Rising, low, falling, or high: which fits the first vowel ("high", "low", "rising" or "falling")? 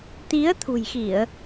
rising